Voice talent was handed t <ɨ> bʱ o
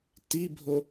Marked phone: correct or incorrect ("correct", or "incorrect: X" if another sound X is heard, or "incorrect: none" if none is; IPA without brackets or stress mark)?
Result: incorrect: i